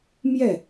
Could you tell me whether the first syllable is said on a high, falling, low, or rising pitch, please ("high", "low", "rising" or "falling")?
falling